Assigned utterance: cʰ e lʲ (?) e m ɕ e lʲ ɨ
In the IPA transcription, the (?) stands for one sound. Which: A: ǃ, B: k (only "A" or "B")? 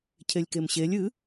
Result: B